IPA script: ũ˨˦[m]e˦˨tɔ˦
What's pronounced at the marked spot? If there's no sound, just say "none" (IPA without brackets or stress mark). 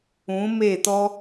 m